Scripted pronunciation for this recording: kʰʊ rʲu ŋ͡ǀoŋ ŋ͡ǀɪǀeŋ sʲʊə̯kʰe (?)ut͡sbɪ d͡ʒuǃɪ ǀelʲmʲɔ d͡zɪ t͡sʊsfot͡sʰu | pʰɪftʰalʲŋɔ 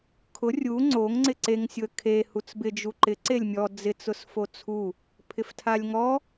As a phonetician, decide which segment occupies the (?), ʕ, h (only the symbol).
h